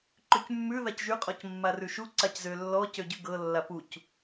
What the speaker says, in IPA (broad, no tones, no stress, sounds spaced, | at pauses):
ǃ ʉ c mː ʉ ð a c ʒ y qʼ ɔ c mː a r ʉ ʃ u ǀ a c z ø lː ɔ c ø ɟ ʉ ɡ ɤ lː a p u c